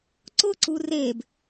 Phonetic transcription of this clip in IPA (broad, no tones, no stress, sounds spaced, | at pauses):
ǀ ʊ ǀ u r e b